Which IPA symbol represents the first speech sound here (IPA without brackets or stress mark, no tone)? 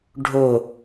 ɖʱ